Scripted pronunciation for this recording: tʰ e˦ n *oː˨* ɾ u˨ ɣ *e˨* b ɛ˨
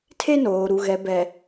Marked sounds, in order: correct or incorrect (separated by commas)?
correct, incorrect